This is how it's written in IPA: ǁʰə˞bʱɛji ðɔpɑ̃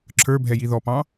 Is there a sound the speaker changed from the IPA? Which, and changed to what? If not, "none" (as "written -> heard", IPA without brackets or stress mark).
none